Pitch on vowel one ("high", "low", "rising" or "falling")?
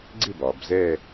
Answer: falling